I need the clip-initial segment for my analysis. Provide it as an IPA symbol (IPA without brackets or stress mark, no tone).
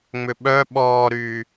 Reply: ŋ͡m